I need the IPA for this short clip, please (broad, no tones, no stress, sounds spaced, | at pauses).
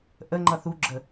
ʔ ə ŋ͡ǃ ʌ θ u ɡ͡ǁ ə